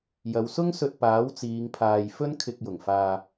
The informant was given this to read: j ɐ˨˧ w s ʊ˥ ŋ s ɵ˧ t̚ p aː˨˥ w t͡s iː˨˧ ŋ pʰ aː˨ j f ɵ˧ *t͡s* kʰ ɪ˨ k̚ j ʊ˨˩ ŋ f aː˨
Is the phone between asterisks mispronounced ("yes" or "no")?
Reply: yes